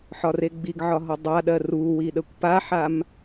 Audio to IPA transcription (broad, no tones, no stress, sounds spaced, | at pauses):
ħ ɒ r e ɡ͡b i ɡ ʕ ɒ ɦ ɒ dˤ a ɗ ɜ r u w i ɗ ə kʷ p a ħ a m